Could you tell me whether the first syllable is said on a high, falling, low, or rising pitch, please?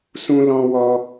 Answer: high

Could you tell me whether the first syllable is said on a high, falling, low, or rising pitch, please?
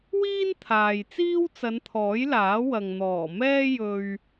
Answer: high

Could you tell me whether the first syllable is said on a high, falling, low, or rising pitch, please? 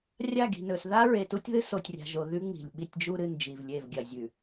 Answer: falling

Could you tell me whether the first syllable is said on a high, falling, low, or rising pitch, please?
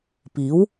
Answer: rising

